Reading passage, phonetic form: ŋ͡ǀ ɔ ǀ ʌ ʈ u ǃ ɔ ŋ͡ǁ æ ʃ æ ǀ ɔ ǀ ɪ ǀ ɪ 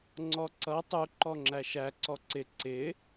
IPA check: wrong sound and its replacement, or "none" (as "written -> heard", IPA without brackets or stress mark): ʈ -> tˤ